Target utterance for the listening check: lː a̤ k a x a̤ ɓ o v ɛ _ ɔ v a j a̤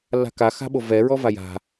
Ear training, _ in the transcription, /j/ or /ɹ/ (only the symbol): ɹ